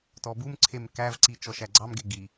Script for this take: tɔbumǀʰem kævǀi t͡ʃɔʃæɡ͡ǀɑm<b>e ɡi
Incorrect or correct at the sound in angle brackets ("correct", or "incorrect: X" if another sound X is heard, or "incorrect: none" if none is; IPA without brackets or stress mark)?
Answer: incorrect: ɡ